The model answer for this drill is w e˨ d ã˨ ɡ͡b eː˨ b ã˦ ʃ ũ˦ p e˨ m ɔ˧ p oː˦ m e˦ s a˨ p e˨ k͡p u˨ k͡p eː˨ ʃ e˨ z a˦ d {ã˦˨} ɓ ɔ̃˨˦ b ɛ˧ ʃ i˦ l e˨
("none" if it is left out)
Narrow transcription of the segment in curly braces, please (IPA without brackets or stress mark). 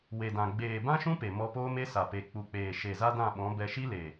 ã˦˨